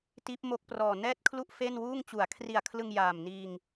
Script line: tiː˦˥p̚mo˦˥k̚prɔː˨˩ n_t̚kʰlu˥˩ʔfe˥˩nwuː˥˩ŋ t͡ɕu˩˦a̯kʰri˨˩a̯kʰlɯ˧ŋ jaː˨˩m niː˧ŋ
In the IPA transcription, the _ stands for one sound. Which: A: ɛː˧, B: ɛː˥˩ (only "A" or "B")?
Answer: B